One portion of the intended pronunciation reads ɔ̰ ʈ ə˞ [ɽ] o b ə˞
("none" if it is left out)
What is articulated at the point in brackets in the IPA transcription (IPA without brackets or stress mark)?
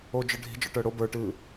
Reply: ɽ